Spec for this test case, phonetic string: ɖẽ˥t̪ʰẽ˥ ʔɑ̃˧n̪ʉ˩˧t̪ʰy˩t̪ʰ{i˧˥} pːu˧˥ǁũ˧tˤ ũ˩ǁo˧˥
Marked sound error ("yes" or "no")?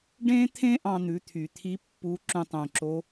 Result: no